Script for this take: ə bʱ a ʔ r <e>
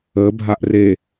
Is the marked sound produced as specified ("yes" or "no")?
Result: yes